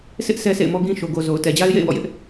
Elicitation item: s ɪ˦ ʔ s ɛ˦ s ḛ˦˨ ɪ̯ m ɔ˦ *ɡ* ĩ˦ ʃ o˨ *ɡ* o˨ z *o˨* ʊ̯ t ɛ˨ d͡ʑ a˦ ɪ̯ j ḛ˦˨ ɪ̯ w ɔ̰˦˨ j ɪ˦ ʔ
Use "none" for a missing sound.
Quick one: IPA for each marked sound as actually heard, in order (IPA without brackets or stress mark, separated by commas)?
ɡ, ɡ, o˨